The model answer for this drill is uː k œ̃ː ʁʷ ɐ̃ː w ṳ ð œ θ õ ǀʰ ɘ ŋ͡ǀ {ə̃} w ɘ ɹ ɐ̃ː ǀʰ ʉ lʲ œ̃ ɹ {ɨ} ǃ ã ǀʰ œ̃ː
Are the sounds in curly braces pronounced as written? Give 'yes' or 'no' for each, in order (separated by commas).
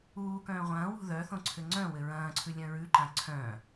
no, no